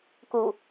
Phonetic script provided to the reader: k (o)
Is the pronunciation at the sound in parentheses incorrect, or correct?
incorrect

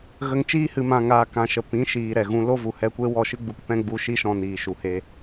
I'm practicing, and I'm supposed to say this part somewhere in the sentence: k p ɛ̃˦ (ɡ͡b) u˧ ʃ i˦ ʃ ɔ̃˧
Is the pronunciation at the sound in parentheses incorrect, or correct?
correct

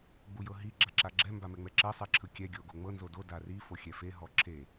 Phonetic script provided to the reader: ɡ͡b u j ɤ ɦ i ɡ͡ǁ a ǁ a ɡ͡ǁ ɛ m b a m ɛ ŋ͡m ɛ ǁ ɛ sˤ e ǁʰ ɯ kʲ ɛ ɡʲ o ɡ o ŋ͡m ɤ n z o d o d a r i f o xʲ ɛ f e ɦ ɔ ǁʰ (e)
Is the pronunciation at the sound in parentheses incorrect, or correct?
correct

